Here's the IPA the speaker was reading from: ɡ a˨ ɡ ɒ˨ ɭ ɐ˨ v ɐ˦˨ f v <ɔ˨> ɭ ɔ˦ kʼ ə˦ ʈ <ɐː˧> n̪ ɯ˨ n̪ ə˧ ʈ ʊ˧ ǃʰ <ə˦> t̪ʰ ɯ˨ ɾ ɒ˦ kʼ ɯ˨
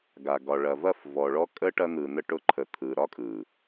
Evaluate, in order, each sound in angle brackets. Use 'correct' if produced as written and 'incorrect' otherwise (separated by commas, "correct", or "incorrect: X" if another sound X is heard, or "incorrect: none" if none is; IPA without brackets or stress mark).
correct, incorrect: ɐ˧, incorrect: ə˨